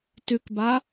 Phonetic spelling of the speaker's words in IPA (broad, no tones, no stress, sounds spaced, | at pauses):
t ʉ k b a